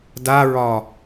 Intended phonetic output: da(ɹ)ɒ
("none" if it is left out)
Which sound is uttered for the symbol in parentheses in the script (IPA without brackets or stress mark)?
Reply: ɹ